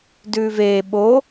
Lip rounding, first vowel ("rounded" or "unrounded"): rounded